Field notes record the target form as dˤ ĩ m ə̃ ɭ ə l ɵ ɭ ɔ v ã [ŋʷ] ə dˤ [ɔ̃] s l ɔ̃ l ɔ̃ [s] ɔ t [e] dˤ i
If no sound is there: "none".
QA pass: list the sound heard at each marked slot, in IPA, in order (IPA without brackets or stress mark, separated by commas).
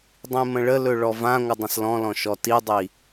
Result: ŋʷ, ə̃, ʃ, i